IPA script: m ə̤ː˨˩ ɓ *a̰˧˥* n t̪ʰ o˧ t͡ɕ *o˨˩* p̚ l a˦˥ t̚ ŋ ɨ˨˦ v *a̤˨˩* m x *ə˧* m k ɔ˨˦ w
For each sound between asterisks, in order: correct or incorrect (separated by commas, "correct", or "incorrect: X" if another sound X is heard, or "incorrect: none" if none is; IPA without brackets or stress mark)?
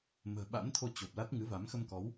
correct, correct, incorrect: a˨˦, correct